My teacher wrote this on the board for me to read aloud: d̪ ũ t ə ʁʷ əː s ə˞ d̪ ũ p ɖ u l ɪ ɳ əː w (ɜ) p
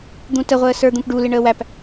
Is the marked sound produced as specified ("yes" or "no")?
no